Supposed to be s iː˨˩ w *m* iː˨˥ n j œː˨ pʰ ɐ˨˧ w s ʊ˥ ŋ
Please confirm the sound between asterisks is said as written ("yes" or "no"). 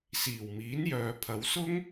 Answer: yes